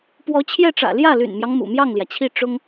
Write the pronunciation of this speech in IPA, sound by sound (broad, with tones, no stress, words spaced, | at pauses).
pwɔ˧˥t͡ɕʰjɛ˥˩ʈ͡ʂä̰˨˩ ljä˥˩ly̰˨˩nmjɑ˦ŋ mṵ˨˩mjɑ˥˩ŋljä˩t͡ɕʰi˥˩ ʈ͡ʂʊ˥ŋ